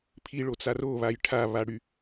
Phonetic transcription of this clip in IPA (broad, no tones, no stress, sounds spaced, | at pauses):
pʰ i ɭ o t͡s a r o β a j ʈʰ a β a ɽ y